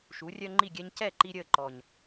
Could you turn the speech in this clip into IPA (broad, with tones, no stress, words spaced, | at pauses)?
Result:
ʃu˩˥rʲœ˦ŋ͡ǃi˥˩ɡʲɛ˦ɲ cɛ˥˩ ǃi˦ɾʲəː˥˩ǃɔ˨˩ɲ